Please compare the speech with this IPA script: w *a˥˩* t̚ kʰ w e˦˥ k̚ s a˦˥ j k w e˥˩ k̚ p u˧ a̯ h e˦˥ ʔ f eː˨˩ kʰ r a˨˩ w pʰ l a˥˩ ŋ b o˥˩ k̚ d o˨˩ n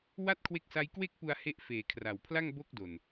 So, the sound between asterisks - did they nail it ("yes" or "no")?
yes